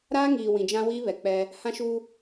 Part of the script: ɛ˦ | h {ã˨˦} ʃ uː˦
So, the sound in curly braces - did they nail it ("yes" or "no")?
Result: no